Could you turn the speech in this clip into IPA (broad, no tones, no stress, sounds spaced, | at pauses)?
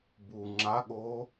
b u ŋ͡ǁ a ɠ oː